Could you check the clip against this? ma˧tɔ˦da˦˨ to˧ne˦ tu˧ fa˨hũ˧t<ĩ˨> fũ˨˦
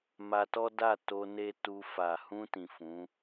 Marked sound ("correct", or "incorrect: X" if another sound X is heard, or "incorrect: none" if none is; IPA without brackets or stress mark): correct